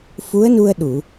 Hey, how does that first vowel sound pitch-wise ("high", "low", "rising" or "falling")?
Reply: rising